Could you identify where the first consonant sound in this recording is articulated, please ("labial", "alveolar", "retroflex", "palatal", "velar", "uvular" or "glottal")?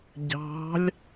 palatal